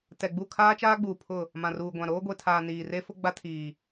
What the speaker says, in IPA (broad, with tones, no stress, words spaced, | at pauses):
tɛ˨ɡ͡bu˦˨ kʰaː˦t͡ʃaː˦ɡ͡buː˨pʰʊ˦˨ | mã˨ruː˨ɡʷã˨ ɾoː˦ɡʷe˨tʰaː˨ niː˨re˦fʊ˦ ɡ͡ba˦tʰiː˨